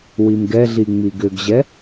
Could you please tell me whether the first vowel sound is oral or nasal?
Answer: oral